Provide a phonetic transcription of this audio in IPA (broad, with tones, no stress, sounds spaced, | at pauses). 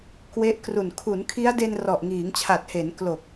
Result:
k w e˦˥ ʔ k r u˨˩ n kʰ u˩˦ n kʰ i˦˥ a̯ d e˧ n r ɔ˨˩ ʔ ŋ iː˩˦ ŋ t͡ɕʰ a˨˩ t̚ h e˩˦ n k l o˨˩ k̚